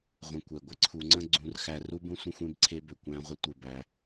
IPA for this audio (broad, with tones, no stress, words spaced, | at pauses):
ʁʷə̃˨kʷɛ˩ ɡʷɪ˥ǀʰu˨ŋ͡ǀə̃˦ ɡ͡ǀũ˨rxæ˨ ru˥bũ˦sʷə̃˦ xʷẽ˥bǀʰe˦bø˩ kʷæ̃˦ʁʷə˦ tʷɪ˩ bæ˩